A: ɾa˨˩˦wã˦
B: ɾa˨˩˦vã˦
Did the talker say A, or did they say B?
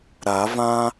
B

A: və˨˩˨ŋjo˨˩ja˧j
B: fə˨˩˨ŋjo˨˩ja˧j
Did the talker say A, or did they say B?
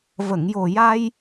A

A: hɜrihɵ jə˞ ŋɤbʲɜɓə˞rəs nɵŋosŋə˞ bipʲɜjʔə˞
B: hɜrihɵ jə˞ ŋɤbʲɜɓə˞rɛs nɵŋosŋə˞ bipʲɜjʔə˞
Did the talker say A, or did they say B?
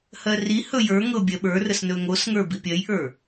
A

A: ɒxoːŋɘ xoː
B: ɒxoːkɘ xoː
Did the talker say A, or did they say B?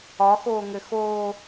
A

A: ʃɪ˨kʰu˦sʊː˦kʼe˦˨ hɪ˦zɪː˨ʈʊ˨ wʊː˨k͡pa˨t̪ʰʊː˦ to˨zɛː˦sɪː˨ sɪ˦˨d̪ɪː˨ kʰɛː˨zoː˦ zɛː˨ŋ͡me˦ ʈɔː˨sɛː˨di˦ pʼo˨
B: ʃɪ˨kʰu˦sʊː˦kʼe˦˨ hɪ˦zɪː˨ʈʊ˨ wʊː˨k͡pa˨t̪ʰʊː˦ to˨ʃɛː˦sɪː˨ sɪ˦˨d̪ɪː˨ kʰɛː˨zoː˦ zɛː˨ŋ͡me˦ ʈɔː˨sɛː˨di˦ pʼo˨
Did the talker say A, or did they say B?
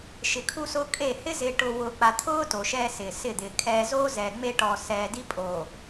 B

